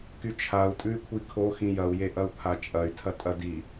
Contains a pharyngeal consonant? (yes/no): no